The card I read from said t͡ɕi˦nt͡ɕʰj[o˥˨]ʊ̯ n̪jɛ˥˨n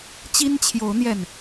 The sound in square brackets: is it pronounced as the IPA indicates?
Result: no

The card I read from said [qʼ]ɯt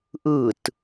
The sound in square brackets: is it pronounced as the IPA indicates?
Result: no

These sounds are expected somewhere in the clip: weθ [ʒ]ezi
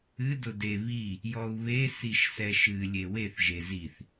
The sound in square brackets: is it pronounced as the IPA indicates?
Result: yes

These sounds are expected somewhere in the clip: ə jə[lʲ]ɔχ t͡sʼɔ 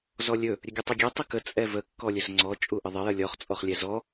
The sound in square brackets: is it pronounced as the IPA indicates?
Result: yes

